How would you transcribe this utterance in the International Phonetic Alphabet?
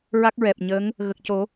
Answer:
ɹa˦˥k̚ɹɛ˨˩p̚ɲəː˧˥ŋ | ɣə˨˩k̚co˨˩˦

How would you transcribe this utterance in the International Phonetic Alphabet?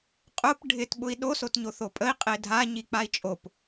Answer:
qʼʊp ɖʱɪt ɓʊi̯ɗo sotɲoθopʼəi̯ qʼedʱa ɲik͡pai̯t͡ʃʼop

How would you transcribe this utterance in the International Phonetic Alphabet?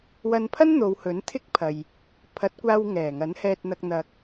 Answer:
wɐ˧npʰɐ˥n n̪o˨˧whɵ˨˥n t̪ʰɪ˥k̚pʰɐ˨j | pʰɐ˨˥t̚kʷaː˧w ŋɛː˨˩ŋɐ˨˥nhɛː˧t̚n̪ɐ˧k̚ n̪ɐ˧k̚

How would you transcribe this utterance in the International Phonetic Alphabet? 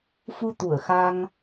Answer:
fu˧ t̪u˧˩ə̯xa˧ŋ

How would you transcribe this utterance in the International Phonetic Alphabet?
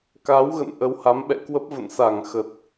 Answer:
ka˨˦wɣə̰˧˨n ʔə˨˦wha˨˦mɓɛ̰˧˨kwə˦˥p̚ və̰˧˨nsa˧˩ŋxə˨˩t̚

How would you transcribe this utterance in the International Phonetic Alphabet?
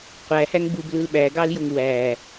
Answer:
qʷæhæŋ bublɯl ɓæɡɑljoŋ wæ

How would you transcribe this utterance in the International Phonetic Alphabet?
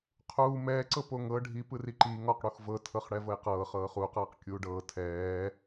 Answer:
qʰuː mɛːǀɤ poŋɤ ɖʱi pɯriǃiː ŋɔqɽux vɤ tʰɤχɽɛvɤjqɤː χɤːχuːqɤːq kʲuːɖɤː tʰɛː

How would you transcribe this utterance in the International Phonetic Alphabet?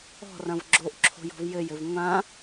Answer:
ɔ̤rɐ̃v ɡ͡ǁoʔ ǁʰo̤jɔ̤vjɘj ɘvŋʷã

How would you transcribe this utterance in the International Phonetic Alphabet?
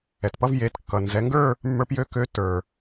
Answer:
ɛ˩tpʌ˧vje˩˧t kːʌ˩nzɛ˩˧ŋɡə˞˥˧ | mːə˞˧pjø˧ kø˨˥ tə˞˩

